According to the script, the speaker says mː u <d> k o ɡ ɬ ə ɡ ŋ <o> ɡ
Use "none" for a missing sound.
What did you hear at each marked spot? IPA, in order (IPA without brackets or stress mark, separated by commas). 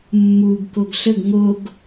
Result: ɡ, o